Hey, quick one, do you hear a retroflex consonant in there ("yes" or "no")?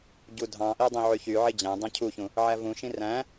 no